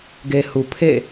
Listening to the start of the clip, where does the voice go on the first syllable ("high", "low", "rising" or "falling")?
low